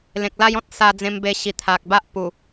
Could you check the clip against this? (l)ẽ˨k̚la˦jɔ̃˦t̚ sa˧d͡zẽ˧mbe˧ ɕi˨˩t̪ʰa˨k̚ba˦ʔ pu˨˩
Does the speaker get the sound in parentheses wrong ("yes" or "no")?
no